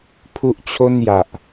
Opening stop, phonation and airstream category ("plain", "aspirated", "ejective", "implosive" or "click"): aspirated